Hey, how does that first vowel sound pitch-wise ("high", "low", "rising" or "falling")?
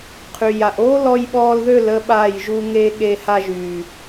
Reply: low